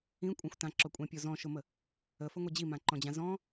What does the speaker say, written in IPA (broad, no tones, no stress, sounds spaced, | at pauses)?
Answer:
ĩ kʷʼ ã xʷ t ã ǁ ɔ kʷʼ ɛ̃ pʲ o z ɔ̃ ʃ ʊ m ə | ə f ə ŋʷ ə d͡ʑ i m ã ǃ ɔ̃ d͡ʑ ã z ɔ̃